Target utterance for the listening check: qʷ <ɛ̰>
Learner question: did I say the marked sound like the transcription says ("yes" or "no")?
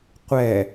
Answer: no